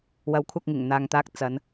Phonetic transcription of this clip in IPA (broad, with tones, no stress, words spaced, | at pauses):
wɐ˨˥w kʷʰɐ˧k̚ŋɪ˨˩ŋ n̪aː˨ŋt̪aː˧k̚ t͡sɐ˨˧n